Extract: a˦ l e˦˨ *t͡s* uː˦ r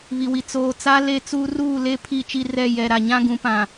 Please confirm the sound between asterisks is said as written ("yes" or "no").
yes